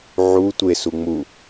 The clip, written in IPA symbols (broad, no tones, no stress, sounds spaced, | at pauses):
ʕ u tʷ e s u ŋ͡m u